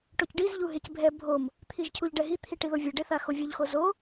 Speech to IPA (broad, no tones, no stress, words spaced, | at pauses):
ʈocɖiz ʎuɦecbʱɛ bʱom | t̪ʰiʒcʰuʎɖɛɦi t̪ʰiʈiðovʲe ɖeθaxovʲoʎ xozo